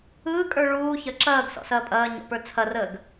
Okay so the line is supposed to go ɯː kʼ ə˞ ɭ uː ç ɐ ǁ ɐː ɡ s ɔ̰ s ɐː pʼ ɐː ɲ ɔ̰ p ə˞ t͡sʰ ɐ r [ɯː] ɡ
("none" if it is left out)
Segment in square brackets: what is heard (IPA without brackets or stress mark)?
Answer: əː